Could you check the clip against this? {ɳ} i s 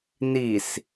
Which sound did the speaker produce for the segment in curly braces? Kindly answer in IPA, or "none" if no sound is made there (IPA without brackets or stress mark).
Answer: n